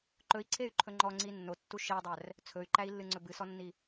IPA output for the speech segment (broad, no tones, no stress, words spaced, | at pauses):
ǃɵi̯ǀʰey̯ǃʰɵ ŋ͡ǃɔŋ͡ǀi nːotːu ʃedˤær | t͡sʰɵy̯ǃæi̯lːɨŋ͡ǀɵ bɨsɔnːi